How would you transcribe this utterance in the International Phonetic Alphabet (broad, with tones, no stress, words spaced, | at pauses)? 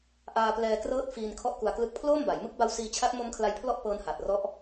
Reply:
ʔaː˧plɛː˧ krɤː˦˥t̚fiː˧n kʰɔ˦˥ʔku˧a̯klɯ˦˥k̚ pʰloː˥˩mba˩˦j mɯ˦˥k̚ba˦˥wsiː˧t͡ɕʰa˦˥t̚ mo˦˥mkʰla˧j pʰlɔ˥˩ʔ pɤː˦˥nha˨˩t̚rɔ˦˥ʔ